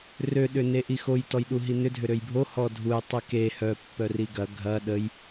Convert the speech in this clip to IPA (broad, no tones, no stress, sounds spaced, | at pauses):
r ø ɗ ʏ n e ʔ i x o j t ɔ j ɗ u ɦ i n ʏ dʱ ʏ ɾ ø j bʱ o h ɔ dʱ u j tˤ i k e h œ pː œ r i ɡ ɐ ɡʱ ɐ ɗ ə j